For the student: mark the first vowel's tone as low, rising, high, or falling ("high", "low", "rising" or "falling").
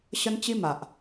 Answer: high